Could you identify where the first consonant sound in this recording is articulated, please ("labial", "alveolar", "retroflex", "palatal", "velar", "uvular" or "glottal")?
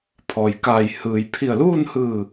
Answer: labial